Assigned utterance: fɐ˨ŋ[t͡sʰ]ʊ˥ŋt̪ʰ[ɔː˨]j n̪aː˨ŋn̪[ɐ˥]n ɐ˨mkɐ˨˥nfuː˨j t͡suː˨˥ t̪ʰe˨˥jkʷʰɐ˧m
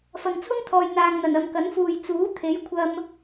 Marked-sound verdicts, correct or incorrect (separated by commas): correct, correct, incorrect